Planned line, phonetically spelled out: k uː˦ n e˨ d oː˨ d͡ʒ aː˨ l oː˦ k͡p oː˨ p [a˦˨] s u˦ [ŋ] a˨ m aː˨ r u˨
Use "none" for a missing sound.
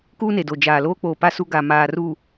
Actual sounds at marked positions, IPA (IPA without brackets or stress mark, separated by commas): a˦, ɡ